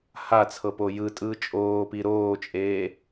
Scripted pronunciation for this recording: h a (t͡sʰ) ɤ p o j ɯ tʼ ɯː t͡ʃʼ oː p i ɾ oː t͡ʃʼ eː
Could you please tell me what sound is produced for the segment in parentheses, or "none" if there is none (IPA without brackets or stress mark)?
t͡sʰ